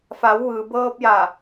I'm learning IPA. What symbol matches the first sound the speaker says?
f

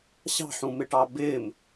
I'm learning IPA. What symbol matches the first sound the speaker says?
ɕ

